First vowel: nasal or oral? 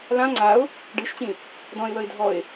nasal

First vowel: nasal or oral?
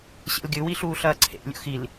oral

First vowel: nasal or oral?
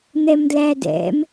oral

